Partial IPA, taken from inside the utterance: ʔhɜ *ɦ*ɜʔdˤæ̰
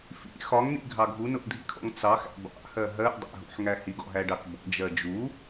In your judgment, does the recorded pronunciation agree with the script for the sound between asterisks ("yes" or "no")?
yes